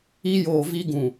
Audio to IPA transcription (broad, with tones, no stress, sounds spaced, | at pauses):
i˦ j oː˨ v i˦ ɡ ũ˨